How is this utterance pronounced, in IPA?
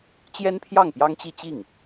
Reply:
t͡ɕjɛ˥npʰjɑ˥˩ŋ pjɑ˥ŋt͡ɕi˥˧t͡ɕi˥˩ŋ

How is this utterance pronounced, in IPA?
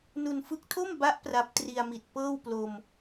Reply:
nu˧nfɯ˦˥k̚tʰo˥˩mba˦˥ʔ pra˦˥p̚ tri˧a̯mi˨˩t̚ pɤː˥˩wplo˧m

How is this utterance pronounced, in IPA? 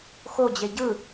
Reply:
xod͡ʑe ɟɯ

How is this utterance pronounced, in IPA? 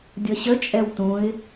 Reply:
dʲʌɕə t͡ʃʼɛwtũɪ̯

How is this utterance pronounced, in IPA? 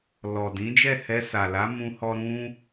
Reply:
lɔ˨dĩ˨˦ d͡ʒɛ˦˨hɛ˧sa˨la˨˦ mũ˧hɔ˧ ɾũ˦

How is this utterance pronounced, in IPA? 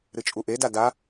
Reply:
ɾɨt͡ʃʼuʔeda da

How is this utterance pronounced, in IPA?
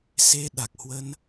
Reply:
se˧ɗa˨˩k̚hwə˧n

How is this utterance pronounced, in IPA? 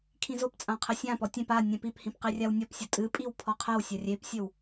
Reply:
kʰĩzopt͡sʼã qʰɘsʲãpɔ tʲẽp a nʲɛ̃piphĩp qirʲawnʲɔpsʲu tʼɨpʼiw pʰɔqʰɛwsʲɐ rʲepsʲɘw

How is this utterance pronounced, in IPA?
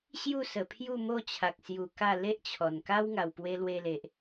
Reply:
ɕju˥˧sə˨˩pʰju˥˧mo˥˧ t͡ɕʰa˨k̚sju˨˩ ka˥˧ le˦ʔt͡ɕʰɔ˨˩n ka˦w ŋa˨˩wpwe˧lwe˧le˨ʔ

